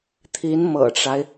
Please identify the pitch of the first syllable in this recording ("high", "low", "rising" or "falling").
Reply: rising